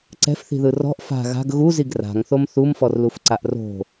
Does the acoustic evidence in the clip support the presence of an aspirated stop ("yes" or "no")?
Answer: no